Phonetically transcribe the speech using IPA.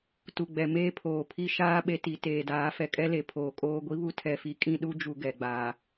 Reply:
tu˨ɡ͡bɛ˨ meː˦ pʰoː˨pʰi˦ ʃaː˦ ɓe˦ti˨˦teː˨ daː˨˦fɛ˨kʼɛ˦le˨˦ pʰoː˨kʼoː˦ ɡʷi˦βu˦ tʰɛ˦fi˦ kʼĩ˦˨ɗu˦d͡ʒu˨ ɡɛ˨ɡ͡baː˨

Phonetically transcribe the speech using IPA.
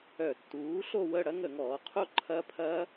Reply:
œ˧˩˧tːuː˩˥ ɬo˥˧wə˥˧ ɽɐ˦˥ŋə˧˩˧ŋɔː˩˧qʰo˥˧ ǃʰɐ˦˥pʰɐ˦˥

